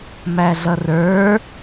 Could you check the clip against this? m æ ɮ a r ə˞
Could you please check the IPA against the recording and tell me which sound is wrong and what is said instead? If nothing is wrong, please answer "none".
a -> ʌ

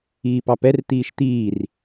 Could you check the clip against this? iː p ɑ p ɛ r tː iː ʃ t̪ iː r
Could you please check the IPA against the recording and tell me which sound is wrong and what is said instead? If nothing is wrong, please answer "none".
tː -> t̪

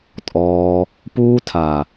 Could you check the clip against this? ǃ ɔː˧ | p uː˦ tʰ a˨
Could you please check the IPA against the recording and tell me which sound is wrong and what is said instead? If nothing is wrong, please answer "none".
ǃ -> tʼ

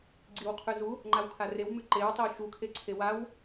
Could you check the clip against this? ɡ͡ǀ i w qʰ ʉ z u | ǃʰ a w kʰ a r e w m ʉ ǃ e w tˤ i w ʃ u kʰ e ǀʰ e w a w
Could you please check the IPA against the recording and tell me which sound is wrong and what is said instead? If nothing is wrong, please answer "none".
ǃʰ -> ŋ͡ǃ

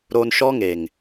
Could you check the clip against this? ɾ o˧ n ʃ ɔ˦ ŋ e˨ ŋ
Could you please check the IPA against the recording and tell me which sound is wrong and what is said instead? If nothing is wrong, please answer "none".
none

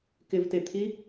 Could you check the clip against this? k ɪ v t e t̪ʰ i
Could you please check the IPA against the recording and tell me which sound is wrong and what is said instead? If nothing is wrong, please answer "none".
none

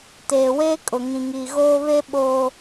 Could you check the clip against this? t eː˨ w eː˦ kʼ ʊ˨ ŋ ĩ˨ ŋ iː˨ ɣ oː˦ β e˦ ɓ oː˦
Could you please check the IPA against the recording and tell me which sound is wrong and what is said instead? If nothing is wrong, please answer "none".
none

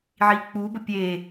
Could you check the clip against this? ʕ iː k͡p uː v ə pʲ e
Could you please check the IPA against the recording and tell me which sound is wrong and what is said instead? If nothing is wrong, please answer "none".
v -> b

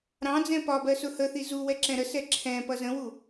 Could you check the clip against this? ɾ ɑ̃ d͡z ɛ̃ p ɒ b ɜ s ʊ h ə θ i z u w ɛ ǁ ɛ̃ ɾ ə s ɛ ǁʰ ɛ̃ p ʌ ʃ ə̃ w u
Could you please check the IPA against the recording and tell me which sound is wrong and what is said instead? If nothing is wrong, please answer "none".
ʃ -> z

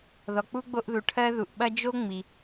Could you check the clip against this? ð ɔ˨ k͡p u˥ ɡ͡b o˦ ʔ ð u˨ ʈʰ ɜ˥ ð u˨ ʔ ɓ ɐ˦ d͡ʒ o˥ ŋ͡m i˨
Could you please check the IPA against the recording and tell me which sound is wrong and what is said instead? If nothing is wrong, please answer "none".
none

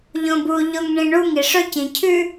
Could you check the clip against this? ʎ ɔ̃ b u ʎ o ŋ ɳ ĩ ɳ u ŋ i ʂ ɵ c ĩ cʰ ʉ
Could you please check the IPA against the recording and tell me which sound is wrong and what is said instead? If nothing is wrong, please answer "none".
ɔ̃ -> õ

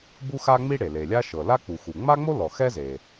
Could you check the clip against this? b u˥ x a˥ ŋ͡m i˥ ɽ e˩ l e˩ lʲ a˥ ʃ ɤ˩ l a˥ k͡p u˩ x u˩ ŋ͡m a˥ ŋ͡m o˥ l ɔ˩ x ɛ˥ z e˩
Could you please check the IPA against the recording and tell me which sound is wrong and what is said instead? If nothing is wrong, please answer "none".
none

